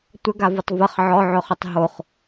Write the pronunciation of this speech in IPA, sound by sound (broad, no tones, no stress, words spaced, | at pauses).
tʷəɡavʊtˤ vəχ ʕɔʕɵχɵtˤ ɦoχ